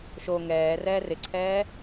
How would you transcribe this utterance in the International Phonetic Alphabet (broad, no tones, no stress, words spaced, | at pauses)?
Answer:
ʃo ŋɛː rɛːrɪǀʰɛː